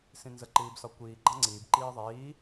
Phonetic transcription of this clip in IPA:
s ĩ n z ə ǃ iː b s ɒ kʷ iː ɡ͡ǃ ɑ̃ ŋ͡ǀ iː b ǃ iː ðˤ iː

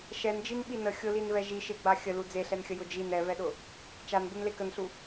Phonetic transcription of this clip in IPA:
ʃ ɛ n d͡ʒ i n ɓ i n ə xʲ ʊ l i n v ɛ ʒ i ʃ e ɡ͡b a xʲ ə l u d͡z e ɬ ɛ n xʲ ə j ʊ d͡ʒ i n ɛ v ɛ ɗ ʊ | t͡ʃ a n b u n l e k ə n ɬ u

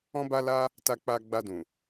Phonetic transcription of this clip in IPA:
ɔ̃˦ b a˦ l a˦ | t a˧ k͡p a˧ ɡ͡b a˧ d ũ˨

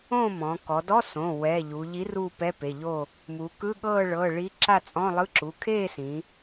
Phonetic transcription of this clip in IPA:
õ˥˨ m ɔ̃˩˧ k ɔ˩˧ d ɔ˧˥˧ s õ˩˧˩ w ɛ˩˧˩ ʎ u˩˧ ʎ i˨˥ r u˥˨ p ɛ˧˥˧ p e˩˧˩ ʎ o˥˨ | m u˩˧ k ɯ˧˥˧ ɠ ɤː˥˨ ɭ ɤː˩˧˩ ɭ i˨˥ ǁ a˥˨ t͡sʼ ɔ̃˧˥˧ lˠ ɯ˧˥˧ ǁ u˩˧˩ kʰ eː˥˨ s ĩ˩˧

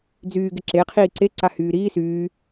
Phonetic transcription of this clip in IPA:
d͡z yː ɡ ɪ ǁ e qʰ iː ǀ e ǀ a h yː ɾ iː s yː

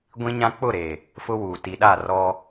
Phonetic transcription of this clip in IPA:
ɡʷ ĩ˦ ɲ ã˦ k͡p ʊ˦˨ ɾ e˨ | f ʊ˦ w uː˨ t i˨ ɗ a˦˨ r ɔ˦

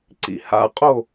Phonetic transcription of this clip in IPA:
ǀ ḭ h a̰ qʼ o

